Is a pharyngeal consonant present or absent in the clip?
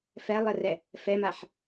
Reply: present